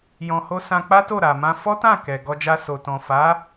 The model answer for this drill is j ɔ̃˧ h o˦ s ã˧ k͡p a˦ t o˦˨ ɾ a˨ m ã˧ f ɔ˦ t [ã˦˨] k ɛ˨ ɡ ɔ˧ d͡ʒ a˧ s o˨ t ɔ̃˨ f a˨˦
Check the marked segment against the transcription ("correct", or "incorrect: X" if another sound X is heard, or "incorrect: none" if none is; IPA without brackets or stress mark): correct